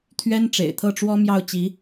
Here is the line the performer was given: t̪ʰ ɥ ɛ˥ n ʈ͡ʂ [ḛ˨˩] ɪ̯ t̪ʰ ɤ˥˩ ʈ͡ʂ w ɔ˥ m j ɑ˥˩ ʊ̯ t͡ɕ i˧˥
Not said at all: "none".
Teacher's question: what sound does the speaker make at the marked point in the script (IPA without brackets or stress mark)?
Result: ḛ˨˩